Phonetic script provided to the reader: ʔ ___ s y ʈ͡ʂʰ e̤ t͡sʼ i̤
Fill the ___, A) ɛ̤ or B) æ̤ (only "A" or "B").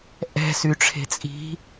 A